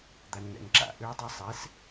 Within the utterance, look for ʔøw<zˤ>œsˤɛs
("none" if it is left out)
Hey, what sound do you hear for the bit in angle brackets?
dˤ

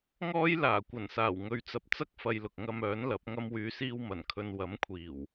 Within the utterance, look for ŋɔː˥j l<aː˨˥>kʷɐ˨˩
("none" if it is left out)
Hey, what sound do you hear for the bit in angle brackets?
aː˨˩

